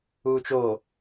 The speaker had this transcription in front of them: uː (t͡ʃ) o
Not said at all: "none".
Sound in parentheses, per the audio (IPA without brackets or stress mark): t͡ʃ